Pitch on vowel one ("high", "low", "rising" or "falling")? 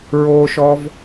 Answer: low